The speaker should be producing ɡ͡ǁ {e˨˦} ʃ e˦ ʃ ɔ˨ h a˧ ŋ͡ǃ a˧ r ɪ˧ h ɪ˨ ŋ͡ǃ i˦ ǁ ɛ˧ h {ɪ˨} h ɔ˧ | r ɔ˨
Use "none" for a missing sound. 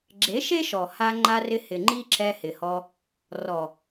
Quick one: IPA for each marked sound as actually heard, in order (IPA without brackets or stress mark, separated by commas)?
e˨˦, ɪ˨